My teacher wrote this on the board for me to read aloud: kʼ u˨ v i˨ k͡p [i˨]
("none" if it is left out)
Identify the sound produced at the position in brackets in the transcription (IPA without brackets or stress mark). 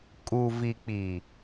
i˨